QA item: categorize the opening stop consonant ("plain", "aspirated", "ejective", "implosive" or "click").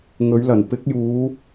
plain